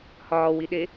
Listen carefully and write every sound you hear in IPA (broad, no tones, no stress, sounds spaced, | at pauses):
h ɒː w i ɗ e